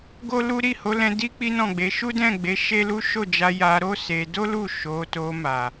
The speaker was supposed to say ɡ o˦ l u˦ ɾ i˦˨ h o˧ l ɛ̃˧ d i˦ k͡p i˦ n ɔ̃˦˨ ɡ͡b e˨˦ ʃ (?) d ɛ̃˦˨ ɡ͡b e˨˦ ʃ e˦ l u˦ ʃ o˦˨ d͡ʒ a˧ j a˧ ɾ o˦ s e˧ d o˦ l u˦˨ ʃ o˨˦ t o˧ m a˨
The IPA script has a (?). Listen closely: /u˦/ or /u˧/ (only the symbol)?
u˦